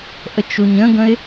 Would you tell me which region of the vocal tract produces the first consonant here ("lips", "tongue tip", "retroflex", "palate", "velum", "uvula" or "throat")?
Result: throat